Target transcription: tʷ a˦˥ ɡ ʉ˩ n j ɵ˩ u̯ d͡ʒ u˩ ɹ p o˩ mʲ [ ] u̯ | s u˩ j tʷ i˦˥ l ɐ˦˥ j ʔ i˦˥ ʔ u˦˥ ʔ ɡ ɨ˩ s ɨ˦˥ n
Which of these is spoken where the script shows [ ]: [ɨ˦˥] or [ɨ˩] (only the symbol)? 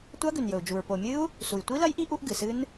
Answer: ɨ˦˥